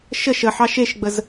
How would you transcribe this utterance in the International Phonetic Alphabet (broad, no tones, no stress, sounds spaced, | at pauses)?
ʃ ə ʃ ə ħ ɑ ʃ e ʃ ɡ͡b ə z